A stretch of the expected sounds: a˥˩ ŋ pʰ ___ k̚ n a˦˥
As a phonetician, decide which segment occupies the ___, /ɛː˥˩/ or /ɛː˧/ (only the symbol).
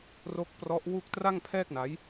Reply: ɛː˥˩